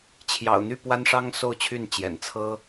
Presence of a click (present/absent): absent